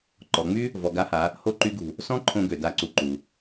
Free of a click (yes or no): no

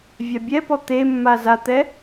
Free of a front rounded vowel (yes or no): yes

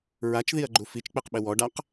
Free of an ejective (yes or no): yes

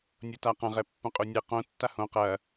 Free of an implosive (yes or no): yes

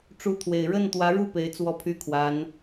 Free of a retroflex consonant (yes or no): no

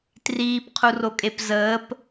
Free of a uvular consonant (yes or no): no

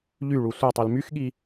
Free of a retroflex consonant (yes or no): no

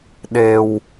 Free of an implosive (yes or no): no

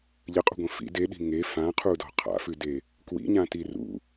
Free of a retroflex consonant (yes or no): yes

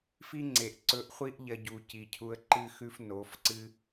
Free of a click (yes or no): no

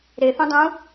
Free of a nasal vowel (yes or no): no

